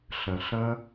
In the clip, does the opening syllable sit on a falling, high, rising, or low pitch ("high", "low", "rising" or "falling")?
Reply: low